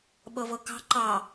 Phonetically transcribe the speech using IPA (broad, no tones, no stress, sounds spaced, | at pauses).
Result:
ɓ ɤ v ɤ k ɑ̤ ǃ ɑ